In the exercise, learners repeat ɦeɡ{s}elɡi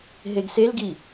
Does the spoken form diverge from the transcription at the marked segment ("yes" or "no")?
no